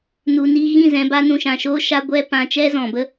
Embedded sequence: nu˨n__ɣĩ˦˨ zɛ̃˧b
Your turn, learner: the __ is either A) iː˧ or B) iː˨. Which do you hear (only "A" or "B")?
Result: A